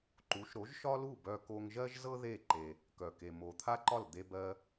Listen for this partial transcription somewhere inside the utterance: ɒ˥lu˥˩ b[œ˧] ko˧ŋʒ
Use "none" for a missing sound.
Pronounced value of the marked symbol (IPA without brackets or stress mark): œ˧